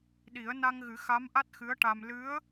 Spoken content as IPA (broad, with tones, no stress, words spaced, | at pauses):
ɗi˨˩˦ə̯na˧ŋɣɨ˨˩˦ xa˧˥mʔa˦˥t̚xɨ˧˥ə̯ʈa˧m lɨ˧˥ə̯